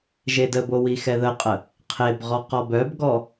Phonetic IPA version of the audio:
ʒedəbo wixɛðəqʼə | qʰebʁɔ qɔbœbɡɔ

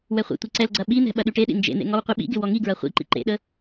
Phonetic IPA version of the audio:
wɛχʷḛtʷi ǀɛlɡ͡ǀɐ ɓin̪ɛ̤ ɓɐɗyʈeɗḭ nd͡ʒḛn̪ḛ ŋɔwqʷiɓḭɡɪ wɔŋiɡɹɐ χʷḭ ǃḭǃḛɗə

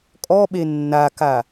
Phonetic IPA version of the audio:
kʼɔɓe nːaka

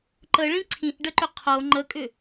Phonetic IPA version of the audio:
ǃəɭĩ ǀʰĩʔɖəǃʏ qʰo ŋ͡ǃəkʼʏ

